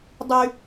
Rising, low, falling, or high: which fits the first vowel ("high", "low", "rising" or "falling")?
high